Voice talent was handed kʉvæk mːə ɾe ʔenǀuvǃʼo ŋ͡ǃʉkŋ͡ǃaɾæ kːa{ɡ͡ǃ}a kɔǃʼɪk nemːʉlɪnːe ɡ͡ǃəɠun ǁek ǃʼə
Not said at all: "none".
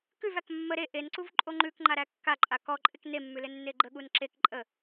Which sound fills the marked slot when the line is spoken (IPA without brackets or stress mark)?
ǃʼ